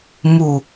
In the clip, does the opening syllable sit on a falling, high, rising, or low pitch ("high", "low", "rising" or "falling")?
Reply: low